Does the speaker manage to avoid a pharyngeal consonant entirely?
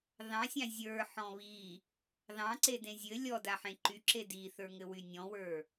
no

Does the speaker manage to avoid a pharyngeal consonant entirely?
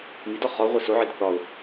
no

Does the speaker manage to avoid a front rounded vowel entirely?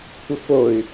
no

